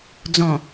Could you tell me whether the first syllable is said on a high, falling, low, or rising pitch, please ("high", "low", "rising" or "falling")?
low